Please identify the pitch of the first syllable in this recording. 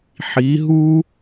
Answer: rising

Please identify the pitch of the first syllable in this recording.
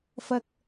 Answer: high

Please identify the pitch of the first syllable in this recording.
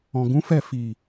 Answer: low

